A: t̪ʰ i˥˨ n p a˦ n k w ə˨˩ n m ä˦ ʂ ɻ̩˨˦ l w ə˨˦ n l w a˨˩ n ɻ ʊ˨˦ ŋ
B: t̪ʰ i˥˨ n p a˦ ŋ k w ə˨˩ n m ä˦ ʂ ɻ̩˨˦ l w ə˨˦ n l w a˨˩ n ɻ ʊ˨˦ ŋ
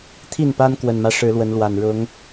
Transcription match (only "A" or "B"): A